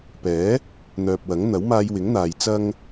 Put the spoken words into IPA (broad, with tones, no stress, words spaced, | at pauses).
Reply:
pɛː˨˥ | n̪œː˨p̚wɐ˨˥ŋ n̪ɐ˨˥wmaː˧jwɪ˨˥ŋn̪aː˨j t͡sɐ˥ŋ